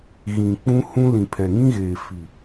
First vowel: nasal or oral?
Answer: nasal